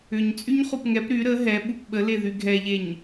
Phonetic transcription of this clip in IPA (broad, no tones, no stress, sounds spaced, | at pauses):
ʏ ɲ t͡sʼ y ɲ χ u p ŋ ɛ p ɾ y ɾ ə ɦ ɛ ɓ u p ɓ ə l e ð y ɡʱ ɛ ʎ e ɲ